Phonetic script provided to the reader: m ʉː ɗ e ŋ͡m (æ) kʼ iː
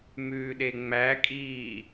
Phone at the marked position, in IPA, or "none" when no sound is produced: æ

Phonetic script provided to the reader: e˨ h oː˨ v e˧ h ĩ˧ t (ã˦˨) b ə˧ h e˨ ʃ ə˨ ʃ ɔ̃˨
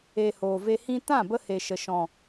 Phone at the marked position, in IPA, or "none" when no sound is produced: ã˦˨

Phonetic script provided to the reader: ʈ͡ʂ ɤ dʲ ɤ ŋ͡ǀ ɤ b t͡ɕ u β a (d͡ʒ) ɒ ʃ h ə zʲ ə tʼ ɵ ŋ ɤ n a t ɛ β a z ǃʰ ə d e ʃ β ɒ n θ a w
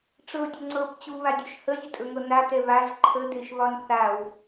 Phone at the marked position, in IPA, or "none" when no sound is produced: dʲ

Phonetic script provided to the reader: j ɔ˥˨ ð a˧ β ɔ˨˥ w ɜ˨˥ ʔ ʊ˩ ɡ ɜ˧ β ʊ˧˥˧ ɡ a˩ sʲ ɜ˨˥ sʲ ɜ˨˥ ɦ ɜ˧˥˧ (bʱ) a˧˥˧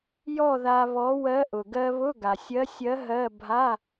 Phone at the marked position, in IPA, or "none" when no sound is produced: bʱ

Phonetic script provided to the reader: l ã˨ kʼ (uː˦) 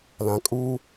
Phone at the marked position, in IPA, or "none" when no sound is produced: uː˦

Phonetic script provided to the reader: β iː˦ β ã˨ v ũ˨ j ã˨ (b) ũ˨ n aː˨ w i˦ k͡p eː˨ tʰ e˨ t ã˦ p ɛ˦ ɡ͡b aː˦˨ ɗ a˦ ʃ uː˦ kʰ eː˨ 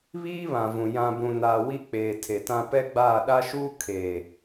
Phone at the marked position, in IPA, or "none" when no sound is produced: b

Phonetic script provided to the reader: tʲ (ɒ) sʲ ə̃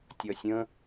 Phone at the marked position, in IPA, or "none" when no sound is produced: ɒ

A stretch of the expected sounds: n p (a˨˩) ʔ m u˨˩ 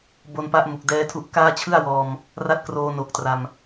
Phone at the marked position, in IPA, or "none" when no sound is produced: a˦˥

